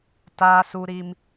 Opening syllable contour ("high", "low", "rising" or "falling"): high